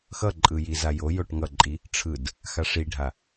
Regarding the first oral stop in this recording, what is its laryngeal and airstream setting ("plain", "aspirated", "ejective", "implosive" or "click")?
click